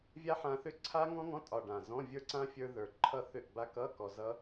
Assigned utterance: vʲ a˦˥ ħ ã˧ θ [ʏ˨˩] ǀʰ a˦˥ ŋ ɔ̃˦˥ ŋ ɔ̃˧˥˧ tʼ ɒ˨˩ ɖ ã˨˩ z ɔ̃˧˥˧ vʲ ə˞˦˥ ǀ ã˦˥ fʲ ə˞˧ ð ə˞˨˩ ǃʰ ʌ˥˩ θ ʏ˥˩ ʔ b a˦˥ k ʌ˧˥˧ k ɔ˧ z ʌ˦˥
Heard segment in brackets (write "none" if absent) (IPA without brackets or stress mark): ʏ˦˥